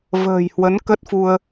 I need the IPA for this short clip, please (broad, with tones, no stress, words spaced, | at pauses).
və̤ː˨˩jhwə˨˦n kə˦˥t̚fu˧ə̯